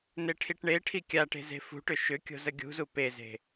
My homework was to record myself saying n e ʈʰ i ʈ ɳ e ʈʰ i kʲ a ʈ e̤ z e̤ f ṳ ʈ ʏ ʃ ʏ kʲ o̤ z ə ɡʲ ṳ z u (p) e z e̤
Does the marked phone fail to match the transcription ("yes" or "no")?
no